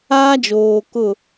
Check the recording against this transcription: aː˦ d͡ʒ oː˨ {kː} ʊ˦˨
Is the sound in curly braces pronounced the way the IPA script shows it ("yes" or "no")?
no